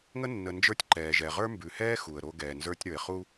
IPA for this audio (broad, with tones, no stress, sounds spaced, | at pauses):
ŋ ə˦ nː ə˨ n d͡ʒ ə˞˦ tʲ ǃ ɛː˨ ʒ ɛ˨ ʁ ə˞˦ m b ʉ˨ h ɛː˦ x u˨ ə̯ ɾ o˦ ɡ ɛː˨ n z ə˞˦ tʲ ɾ ə˞˨ ɪ̯ χ u˦